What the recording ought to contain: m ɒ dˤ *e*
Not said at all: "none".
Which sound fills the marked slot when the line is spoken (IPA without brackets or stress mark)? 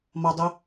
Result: e